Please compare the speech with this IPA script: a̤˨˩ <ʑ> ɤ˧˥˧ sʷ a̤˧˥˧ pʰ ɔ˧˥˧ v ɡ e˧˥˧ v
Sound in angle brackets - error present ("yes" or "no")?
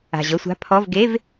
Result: no